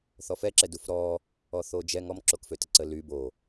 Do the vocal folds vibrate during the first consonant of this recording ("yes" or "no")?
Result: no